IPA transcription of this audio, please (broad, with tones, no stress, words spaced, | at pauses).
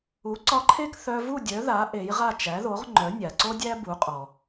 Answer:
u˩˥ǀɒ˧ǃʰe˥˩k θœ˧vu˥˩ dʲœ˩˥ða˩˥ ʔe˩˥jʁa˥˩ t͡ʃæ˩˥ðo˩˥ʁŋ͡ǃœ˩˥ nʲa˩ǀo˥dʲæ˥ bu˩˥qʼɔ˩